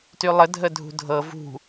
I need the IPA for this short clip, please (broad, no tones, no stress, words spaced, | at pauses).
tylˠə dʱədʱṳdʱɤ vṳ